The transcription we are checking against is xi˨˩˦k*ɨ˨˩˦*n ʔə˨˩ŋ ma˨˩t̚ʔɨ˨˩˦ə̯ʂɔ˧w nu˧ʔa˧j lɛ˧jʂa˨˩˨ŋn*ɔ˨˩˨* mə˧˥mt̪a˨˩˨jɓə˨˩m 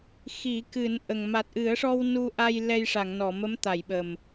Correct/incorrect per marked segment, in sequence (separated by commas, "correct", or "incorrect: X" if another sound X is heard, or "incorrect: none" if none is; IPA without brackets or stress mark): correct, correct